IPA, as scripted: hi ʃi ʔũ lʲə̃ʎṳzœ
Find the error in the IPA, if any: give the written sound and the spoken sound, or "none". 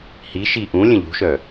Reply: z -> ʃ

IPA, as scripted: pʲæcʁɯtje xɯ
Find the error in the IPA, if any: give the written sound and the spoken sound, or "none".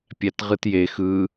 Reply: c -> t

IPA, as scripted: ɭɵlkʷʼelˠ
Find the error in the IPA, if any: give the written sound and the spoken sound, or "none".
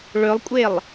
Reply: l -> lˠ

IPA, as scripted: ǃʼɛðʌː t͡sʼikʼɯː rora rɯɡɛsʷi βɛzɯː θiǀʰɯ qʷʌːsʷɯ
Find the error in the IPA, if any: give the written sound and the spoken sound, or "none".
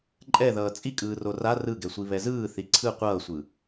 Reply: none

